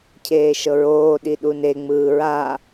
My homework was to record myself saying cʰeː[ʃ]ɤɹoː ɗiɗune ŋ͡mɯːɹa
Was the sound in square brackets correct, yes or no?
yes